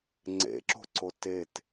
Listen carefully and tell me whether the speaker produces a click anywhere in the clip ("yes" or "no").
yes